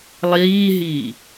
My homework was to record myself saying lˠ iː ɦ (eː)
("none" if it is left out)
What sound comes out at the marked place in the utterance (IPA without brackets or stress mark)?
iː